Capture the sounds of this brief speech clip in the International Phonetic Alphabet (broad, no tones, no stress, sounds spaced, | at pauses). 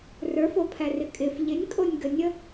r ə˞ f o pʰ æ r ɪ kʼ ɪ f ʎ ɪ nʲ kʼ o nʲ ɡ ə nʲ ə